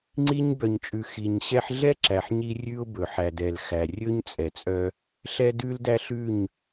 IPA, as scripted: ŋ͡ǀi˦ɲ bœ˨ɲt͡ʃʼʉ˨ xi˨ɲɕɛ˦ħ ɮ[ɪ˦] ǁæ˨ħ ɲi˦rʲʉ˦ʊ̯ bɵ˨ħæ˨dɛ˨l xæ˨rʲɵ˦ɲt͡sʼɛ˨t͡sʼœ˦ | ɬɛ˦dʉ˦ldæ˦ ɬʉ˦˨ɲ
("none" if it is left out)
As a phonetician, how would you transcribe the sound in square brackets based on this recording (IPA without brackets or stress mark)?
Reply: ɛ˦